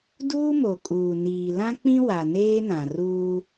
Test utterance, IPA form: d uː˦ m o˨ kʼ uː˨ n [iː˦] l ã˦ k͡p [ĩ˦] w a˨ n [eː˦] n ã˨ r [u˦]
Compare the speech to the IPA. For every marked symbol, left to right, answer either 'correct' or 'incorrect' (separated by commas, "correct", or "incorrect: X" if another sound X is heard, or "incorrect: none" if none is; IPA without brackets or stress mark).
incorrect: iː˨, correct, correct, incorrect: uː˦